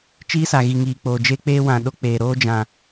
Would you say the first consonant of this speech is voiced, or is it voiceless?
voiceless